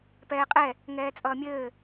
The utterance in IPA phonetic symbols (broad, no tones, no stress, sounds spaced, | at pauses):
p ɛː qʼ ɛ | ŋ ɛː t͡sʼ ʌː mʲ ɘː